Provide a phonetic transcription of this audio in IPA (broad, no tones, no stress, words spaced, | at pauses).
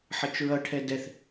ħʌt͡ʃɹʌʈʰɛ dɛθ